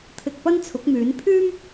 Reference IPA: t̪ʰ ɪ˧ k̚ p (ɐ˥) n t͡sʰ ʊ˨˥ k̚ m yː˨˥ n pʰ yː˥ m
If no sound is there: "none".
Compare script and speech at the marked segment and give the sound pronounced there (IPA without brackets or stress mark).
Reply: ɐ˥